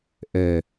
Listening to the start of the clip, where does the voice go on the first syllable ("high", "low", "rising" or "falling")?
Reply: low